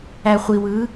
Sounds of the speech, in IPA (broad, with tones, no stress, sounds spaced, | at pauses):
æ˧ χʷ i˧ w ɯ˧˥